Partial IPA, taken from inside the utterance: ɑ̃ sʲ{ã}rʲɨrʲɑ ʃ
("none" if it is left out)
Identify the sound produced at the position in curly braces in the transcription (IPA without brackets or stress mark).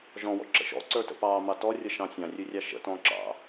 ɑ̃